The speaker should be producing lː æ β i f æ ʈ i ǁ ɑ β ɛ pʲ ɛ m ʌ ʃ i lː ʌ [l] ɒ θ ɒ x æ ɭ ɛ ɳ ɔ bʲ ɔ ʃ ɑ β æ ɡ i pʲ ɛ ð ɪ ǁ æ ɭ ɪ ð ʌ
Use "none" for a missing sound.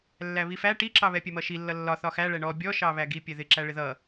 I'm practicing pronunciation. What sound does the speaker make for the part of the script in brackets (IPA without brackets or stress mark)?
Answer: lː